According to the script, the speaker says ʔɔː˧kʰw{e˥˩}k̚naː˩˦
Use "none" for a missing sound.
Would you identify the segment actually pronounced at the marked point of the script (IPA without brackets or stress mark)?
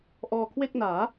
e˥˩